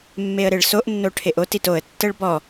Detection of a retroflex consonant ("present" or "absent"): present